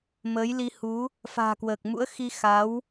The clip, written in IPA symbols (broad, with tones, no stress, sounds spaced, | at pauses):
m əː˨˦ j l i˧ h u˨˦ | f a̤ː˨˩ k w əː˨˩ k̚ m ṵ˧˥ ə̯ x i˧ x a˨˦ w